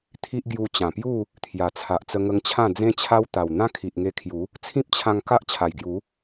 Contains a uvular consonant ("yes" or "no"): no